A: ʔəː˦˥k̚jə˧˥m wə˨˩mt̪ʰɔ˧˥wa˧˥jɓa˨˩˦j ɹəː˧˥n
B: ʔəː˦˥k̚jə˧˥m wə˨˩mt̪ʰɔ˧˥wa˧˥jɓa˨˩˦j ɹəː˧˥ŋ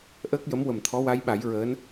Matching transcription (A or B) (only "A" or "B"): A